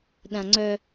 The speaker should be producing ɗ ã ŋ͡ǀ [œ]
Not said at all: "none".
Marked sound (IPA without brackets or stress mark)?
œ